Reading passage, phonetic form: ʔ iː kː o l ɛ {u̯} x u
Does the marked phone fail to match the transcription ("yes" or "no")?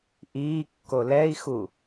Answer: yes